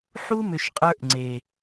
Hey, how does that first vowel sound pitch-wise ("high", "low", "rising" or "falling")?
high